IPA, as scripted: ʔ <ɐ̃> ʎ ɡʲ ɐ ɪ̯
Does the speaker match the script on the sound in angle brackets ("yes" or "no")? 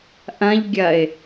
yes